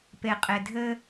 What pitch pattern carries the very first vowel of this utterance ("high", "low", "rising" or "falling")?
low